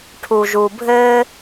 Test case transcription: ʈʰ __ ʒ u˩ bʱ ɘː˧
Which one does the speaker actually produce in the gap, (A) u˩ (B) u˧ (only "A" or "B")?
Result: A